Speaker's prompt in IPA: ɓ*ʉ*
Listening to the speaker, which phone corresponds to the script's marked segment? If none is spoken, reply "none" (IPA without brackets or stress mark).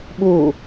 u